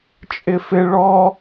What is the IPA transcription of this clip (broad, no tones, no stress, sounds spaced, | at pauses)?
t͡ʃʼ ɪ f ɪ ɭ ɔ